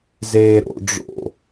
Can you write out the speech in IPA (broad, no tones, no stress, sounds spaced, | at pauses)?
z eː ɾ o̰ ɖ͡ʐ o̰